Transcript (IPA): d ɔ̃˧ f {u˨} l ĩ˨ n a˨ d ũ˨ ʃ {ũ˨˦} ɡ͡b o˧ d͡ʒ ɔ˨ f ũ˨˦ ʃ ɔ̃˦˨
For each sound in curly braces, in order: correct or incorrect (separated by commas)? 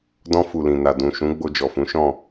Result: correct, correct